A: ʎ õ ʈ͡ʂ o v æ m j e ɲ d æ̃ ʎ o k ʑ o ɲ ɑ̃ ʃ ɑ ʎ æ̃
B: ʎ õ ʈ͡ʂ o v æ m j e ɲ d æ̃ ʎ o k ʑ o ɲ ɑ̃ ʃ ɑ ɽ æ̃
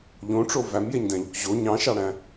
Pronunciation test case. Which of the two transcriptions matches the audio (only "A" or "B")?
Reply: B